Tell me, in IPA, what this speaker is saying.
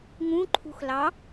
ŋ ũ ǃʰ ṳ x l ɑ

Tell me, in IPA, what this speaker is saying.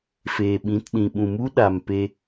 f eː˨ ɓ ĩ˨˦ t ɗ ĩ˨ ɓ ũ˨ m u˦ ɗ a˨ m p e˧

